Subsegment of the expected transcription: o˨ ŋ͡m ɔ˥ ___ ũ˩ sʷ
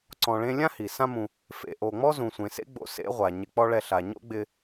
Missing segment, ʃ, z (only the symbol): z